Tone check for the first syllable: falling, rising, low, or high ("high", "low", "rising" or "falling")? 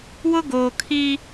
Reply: high